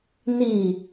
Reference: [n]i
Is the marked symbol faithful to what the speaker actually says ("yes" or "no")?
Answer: yes